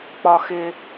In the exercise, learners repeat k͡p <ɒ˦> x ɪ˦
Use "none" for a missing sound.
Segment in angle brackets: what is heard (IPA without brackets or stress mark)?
ɒ˦